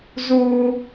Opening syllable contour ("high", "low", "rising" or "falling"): high